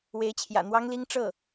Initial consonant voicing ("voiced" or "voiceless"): voiced